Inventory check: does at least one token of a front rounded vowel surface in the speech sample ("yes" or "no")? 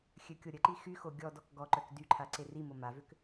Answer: yes